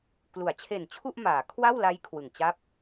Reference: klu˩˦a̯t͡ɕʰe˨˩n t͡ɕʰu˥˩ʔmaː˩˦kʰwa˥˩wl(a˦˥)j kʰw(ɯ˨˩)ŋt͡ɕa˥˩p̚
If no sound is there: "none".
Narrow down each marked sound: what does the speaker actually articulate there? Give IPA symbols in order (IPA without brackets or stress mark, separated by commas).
a˦˥, ɯ˨˩